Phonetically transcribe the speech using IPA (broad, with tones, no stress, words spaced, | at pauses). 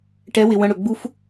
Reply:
ʈɛ˨˦wɪ˨ wə̃˧ɽɵ˨ɡ͡bu˦f